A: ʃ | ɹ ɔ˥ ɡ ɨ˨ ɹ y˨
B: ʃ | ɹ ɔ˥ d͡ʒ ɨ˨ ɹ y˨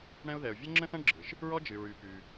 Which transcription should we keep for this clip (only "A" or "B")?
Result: B